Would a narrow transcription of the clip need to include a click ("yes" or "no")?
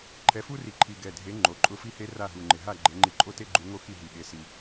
yes